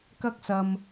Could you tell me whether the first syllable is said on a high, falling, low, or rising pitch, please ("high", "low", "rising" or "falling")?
high